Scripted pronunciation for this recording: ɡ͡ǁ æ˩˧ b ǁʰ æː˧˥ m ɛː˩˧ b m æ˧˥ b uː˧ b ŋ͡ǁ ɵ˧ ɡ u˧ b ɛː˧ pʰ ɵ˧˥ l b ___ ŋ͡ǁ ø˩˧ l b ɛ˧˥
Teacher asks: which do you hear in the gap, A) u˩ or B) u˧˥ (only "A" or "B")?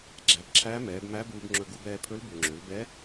A